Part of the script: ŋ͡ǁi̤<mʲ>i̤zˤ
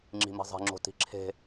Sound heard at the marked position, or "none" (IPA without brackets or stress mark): m